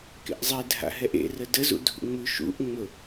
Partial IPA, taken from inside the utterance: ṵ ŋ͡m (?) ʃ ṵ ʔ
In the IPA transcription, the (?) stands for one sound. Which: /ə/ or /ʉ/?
ʉ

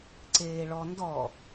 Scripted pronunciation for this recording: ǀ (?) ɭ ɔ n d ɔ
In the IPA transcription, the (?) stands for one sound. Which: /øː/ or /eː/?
eː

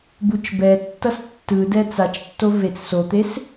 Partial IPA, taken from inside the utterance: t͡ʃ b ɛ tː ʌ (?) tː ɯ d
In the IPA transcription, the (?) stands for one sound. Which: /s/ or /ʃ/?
s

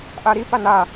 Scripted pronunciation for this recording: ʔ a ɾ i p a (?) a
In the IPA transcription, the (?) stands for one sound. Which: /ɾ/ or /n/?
n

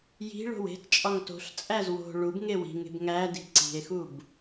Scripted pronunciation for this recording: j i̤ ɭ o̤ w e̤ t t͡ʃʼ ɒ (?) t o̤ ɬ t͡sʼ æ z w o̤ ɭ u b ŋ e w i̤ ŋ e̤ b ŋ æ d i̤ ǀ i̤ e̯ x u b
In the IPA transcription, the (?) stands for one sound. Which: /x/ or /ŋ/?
ŋ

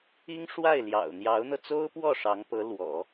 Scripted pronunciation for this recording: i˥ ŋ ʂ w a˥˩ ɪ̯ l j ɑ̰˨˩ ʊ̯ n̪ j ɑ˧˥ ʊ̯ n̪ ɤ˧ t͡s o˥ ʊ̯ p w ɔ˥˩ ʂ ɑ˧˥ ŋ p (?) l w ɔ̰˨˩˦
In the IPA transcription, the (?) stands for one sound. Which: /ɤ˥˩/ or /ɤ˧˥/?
ɤ˧˥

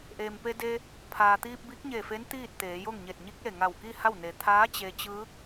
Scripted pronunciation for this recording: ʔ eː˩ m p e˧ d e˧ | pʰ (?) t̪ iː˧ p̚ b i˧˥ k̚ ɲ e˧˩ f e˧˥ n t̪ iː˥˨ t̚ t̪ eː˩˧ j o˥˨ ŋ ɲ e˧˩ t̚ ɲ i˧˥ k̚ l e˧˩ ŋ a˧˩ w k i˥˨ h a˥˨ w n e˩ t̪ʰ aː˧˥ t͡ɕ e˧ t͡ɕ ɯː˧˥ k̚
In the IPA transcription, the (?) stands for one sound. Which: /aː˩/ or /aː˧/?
aː˩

